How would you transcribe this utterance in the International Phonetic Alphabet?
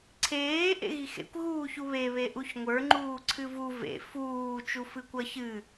ǀʰ eː ʔ ḛ ɣ i x ḛ kʷ ɣ uː ç u β e β e ʔ u ç ŋʷ ə˞ ŋ͡ǃ uː ǀʰ ɨ v u v ḛ f uː t͡ʃ u f ɨ kʷ ʌ ç ɨ

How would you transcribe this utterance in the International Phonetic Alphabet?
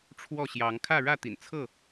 ʈ͡ʂʰ w ɔ˥˨ ɕ j ɑ˨˦ ŋ kʰ ä˥˨ ɻ ä˥˨ t̪ ḭ˨˩ n t͡sʰ ɤ˥˨

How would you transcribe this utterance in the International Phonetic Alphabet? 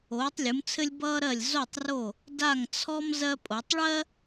oː˩˧ tˤ lʲ u˩˧ m t͡sʰ ɘ˧ lʲ b ʌː˧ ɾ ɜ˧˩ lʲ z o˧˩ tˤ r o˧˩ | d a˧˩ ŋ t͡sʰ ɔ˧ m z ɜ˧ pʼ o˩˧ tˤ ɭ ɜ˥

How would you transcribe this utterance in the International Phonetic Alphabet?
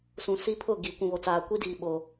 s ũ˨ s i˦ pʰ ʊ˦˨ ɡ i˨ kʷ ũ˨ β o˨ t͡s aː˨ kʷ i˦ d iː˨ ɓ o˨

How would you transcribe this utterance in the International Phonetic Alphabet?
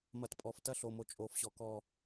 m ɐ˨ t pʼ ɔ˨ f t ɐ˦ ɬ o˨ m o˨ t͡ʃʼ oː˨ f ɕ ɔ˨ k ɔː˦˨

